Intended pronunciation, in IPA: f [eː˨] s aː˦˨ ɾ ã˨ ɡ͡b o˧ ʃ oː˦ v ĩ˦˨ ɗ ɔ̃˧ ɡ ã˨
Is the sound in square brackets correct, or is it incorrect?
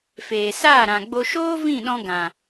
correct